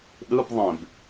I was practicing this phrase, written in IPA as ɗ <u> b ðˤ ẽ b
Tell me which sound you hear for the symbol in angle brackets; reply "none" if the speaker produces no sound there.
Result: ɯ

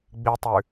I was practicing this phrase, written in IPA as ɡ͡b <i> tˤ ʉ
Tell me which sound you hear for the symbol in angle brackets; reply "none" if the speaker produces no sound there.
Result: i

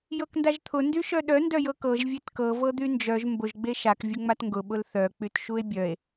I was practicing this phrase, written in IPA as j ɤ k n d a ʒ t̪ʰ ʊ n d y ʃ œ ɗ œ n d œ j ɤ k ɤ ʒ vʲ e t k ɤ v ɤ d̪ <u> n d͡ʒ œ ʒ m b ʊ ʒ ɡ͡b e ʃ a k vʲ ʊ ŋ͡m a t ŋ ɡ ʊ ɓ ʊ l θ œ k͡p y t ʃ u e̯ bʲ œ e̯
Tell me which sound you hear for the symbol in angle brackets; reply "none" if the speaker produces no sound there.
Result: y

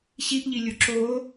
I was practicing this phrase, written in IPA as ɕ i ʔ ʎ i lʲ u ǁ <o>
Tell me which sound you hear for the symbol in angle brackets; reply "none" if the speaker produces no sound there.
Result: o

